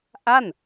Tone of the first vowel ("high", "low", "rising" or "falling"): falling